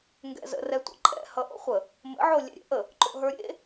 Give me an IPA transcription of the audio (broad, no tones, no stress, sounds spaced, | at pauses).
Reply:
ŋ ɡ ɛ̰ z ə̰ r ɛ tʷ ə̰ ǃʼ ɛ̰ h ʌ ʔ o̰ χʷ ə | m ə̰ ʕ o lʲ ɛ̰ ɾʲ ɛ̰ ʔ ə | ǃ o̰ ɦ ə˞ ɾʲ ḛ